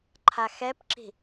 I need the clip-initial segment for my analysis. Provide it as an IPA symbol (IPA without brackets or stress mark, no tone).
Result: ǃʰ